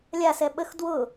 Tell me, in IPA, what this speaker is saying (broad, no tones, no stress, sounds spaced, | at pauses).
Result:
lʲ a s ɛ ɓ ə x d w ʊ